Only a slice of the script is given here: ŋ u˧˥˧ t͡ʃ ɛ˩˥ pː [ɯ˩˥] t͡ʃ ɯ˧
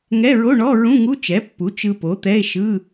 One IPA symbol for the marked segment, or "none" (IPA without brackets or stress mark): u˩˥